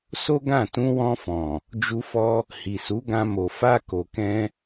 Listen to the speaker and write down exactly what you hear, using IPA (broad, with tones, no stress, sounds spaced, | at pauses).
s o˦ ɡ ã˦˨ t ũ˧ w ɔ̃˧ f ɔ̃˨ | d͡ʒ u˧ f ɔ˧ | h i˨ s u˨˦ ɡ ã˧ m o˨ f a˧ k o˨ k ɛ̃˧